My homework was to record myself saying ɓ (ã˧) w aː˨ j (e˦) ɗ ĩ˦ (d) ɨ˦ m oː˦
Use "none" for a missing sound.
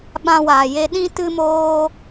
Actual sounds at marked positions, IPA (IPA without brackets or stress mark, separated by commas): ã˧, e˧, t